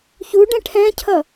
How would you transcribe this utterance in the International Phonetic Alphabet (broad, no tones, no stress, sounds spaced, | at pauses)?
ç u ɖ ɛ̃ ʈʰ ɛ̃ cʰ ʌ